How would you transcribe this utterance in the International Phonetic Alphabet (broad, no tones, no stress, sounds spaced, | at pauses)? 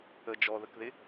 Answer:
ə d͡ʒ ɔ ð ə k ð ɪ